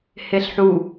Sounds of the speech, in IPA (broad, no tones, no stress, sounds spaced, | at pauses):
h e ɬ ħ u